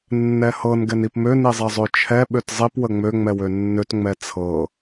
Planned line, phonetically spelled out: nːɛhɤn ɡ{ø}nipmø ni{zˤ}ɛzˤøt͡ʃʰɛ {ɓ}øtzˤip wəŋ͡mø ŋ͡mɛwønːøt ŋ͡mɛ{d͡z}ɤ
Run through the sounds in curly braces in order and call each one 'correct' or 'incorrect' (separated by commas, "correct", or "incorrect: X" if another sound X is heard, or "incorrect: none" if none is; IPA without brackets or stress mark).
incorrect: ɛ, correct, correct, incorrect: t͡sʰ